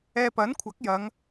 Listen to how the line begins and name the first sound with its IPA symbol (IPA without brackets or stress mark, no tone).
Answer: ɛː